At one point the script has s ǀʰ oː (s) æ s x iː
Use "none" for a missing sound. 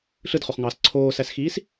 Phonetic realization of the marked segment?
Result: s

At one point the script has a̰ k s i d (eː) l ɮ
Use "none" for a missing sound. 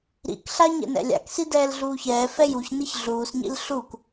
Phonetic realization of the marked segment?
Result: ɛː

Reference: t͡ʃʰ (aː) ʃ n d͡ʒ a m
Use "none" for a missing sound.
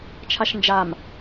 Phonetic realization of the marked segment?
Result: a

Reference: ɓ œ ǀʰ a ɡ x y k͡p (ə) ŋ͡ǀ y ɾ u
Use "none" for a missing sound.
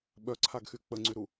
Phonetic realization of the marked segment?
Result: ə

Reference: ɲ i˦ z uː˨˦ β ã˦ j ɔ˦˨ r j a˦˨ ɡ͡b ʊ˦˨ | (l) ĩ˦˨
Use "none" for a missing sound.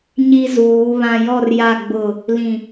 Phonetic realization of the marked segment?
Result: l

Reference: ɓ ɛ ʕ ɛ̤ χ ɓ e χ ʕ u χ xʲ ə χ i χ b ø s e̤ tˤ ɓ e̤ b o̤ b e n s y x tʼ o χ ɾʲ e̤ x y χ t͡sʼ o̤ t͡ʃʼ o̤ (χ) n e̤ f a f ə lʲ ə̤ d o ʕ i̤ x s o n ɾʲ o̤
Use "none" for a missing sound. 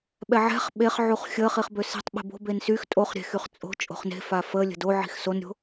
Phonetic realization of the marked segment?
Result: χ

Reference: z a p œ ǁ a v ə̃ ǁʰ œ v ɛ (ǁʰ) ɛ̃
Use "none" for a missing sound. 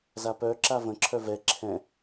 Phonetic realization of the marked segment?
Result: ǁʰ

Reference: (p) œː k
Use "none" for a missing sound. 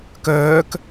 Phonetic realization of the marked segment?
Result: k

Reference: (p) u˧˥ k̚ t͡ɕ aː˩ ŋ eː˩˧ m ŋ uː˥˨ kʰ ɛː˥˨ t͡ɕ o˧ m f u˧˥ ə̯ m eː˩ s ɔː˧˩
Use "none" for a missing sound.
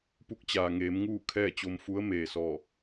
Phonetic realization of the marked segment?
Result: p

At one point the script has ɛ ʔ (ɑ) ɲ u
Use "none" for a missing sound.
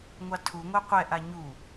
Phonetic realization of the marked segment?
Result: a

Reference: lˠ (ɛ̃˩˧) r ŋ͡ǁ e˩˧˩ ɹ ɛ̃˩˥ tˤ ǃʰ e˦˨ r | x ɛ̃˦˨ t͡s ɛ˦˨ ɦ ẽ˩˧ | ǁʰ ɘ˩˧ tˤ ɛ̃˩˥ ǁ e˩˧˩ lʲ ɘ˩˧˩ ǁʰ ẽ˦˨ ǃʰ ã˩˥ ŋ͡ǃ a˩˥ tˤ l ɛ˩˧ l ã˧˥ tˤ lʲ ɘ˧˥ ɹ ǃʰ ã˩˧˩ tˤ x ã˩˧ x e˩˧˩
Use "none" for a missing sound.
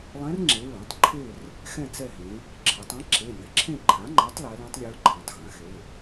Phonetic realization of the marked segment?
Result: ɛ̃˧˥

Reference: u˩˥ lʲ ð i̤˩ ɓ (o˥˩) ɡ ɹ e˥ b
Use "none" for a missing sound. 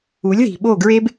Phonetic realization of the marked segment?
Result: o˥˩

